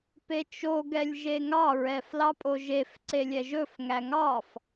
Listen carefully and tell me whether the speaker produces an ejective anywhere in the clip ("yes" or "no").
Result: yes